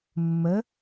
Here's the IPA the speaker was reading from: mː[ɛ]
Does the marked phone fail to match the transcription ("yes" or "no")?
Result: yes